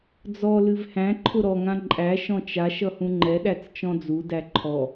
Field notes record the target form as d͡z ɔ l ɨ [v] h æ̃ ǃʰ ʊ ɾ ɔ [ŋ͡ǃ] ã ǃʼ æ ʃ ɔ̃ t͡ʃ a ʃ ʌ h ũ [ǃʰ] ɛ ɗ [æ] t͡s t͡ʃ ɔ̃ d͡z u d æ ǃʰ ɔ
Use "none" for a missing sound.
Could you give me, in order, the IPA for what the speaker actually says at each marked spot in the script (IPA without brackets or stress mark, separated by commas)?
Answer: v, ŋ, ŋ͡ǃ, æ